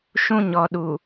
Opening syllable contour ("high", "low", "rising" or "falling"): high